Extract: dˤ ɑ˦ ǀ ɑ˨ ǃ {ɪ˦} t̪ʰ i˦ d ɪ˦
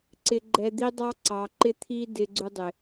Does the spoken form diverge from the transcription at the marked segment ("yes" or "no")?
no